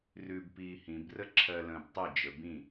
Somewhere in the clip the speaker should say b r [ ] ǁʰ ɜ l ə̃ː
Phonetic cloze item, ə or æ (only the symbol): ə